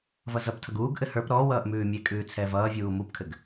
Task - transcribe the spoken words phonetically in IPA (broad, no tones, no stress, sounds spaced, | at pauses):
v ʌ z ʌ p tʰ ʌ ɡ uː ɡ ʔ ɘ h ə˞ p ɾ ɔ w ʌː ʔ m ʉː mʲ e kʼ ʉː t͡sʰ ɛː v ʌː vʲ uː m u p kʰ ɘ ɡ